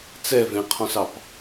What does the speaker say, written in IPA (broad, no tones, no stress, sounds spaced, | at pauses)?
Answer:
t͡s ɛ v ẽ qʰ ɔ̃ s ɑ p